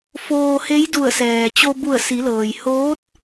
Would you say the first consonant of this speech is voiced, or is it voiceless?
voiceless